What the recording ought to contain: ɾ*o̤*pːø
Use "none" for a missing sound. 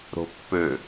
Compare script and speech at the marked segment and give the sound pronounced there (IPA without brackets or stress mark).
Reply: o̤